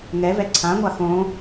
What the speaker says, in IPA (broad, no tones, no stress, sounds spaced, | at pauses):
ŋ ɛ v ɛ ǀʰ ã ŋʷ a x õ